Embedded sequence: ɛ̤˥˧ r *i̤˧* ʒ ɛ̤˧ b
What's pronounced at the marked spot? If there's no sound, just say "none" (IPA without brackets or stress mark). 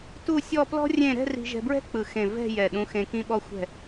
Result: i̤˧